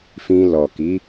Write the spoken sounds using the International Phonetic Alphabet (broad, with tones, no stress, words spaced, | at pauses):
fĩ˧lɔ˨ki˨˦